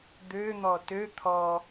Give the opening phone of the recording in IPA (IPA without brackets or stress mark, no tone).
d̪